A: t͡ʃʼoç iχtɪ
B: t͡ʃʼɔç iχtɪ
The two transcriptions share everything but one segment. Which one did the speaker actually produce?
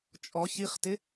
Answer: B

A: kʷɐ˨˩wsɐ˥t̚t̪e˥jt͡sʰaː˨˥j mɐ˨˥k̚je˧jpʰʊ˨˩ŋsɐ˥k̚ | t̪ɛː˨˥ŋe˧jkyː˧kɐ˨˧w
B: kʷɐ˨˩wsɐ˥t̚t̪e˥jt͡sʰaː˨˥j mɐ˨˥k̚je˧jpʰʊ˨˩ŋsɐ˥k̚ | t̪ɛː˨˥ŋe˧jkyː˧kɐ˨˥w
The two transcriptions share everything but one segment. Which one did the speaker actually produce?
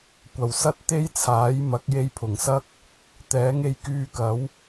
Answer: B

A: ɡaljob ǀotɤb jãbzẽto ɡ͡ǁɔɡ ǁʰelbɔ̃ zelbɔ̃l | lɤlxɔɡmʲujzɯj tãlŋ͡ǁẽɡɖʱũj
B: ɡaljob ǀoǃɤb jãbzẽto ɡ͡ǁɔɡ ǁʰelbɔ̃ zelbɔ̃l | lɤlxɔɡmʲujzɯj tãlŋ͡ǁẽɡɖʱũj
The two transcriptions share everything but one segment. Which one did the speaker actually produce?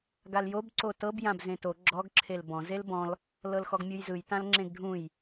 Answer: A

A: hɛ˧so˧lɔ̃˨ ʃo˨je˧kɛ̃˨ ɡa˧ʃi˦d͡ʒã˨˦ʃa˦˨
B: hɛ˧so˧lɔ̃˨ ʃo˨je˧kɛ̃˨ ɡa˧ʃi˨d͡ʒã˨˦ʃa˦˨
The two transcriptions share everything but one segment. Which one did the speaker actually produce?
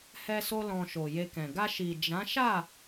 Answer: B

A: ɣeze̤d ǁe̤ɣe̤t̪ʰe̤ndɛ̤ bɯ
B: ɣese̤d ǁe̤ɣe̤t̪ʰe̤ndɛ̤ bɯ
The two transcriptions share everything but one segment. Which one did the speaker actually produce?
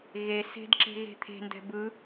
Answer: B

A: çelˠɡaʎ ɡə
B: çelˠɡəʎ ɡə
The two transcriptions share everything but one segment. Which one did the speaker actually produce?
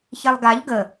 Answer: A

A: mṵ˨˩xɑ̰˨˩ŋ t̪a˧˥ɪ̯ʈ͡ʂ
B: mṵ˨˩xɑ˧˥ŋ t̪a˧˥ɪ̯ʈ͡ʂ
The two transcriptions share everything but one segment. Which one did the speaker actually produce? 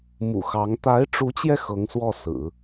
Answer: B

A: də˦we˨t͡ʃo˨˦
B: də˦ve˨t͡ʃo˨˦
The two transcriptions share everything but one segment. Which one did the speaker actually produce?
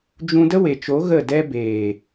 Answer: A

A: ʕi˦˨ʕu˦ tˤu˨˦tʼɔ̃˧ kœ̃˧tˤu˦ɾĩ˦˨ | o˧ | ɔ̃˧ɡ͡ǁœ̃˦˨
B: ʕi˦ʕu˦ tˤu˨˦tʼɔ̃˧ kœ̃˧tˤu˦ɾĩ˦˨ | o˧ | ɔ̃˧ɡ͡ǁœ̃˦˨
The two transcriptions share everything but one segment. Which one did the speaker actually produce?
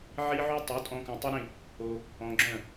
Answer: B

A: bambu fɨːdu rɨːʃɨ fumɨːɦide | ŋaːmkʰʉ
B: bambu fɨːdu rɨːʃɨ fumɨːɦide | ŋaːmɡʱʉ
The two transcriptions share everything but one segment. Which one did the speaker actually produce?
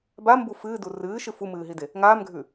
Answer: B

